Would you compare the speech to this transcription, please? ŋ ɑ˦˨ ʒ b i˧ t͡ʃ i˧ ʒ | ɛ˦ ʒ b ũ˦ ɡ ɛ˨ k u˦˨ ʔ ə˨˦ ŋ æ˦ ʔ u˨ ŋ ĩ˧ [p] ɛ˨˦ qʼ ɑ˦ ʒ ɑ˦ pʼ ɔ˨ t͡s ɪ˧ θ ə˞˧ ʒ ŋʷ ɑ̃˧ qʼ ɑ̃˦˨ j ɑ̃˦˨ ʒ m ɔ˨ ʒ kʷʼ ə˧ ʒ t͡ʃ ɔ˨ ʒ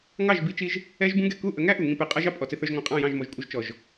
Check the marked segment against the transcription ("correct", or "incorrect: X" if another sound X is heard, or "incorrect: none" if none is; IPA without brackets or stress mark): correct